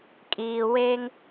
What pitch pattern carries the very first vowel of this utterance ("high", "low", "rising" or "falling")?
low